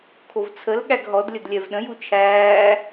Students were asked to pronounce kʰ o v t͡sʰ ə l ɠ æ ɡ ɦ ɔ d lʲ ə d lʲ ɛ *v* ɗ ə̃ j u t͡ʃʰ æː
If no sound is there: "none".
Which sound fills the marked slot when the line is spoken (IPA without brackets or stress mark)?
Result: v